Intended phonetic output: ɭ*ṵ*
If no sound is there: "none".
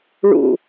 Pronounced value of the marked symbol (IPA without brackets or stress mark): ṵ